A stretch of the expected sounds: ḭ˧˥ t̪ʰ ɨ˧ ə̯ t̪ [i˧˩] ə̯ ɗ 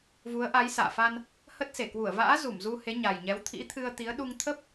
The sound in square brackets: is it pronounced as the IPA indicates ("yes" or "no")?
no